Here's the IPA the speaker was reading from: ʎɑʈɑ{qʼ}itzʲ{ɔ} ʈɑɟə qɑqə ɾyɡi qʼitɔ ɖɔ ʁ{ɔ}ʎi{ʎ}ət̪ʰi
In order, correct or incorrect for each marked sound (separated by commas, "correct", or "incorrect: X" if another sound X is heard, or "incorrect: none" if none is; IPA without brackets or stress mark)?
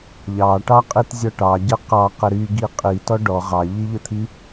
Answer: correct, correct, incorrect: ɑ, correct